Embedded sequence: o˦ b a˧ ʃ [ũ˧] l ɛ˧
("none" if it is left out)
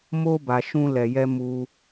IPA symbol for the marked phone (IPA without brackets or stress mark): ũ˦